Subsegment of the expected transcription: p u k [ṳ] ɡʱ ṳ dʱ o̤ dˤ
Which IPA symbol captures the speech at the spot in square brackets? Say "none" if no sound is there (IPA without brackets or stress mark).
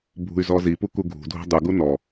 u